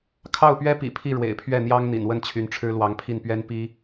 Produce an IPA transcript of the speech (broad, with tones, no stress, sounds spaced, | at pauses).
kʰ ɑ˥˩ ʊ̯ p ɥ ɛ˥ p ḭ˨˩ pʰ i˥˩ ɻ w ḛ˨˩ ɪ̯ pʰ ɥ ɛ˥˩ n̪ j ɑ˥ ŋ n̪ ḭ˨˩ n w ə˥˩ n t͡ɕʰ y˧˥ n ʈ͡ʂʰ ɻ̩˥ l w ɑ˧˥ ŋ pʰ i˥˩ n p ɥ ɛ˥ n p i˥